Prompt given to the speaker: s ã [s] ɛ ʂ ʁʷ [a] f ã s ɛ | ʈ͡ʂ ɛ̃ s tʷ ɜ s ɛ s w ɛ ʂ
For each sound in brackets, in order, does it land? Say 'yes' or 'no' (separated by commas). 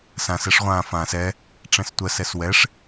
yes, no